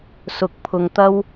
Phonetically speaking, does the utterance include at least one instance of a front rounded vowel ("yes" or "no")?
no